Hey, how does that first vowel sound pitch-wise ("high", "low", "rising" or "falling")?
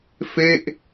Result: falling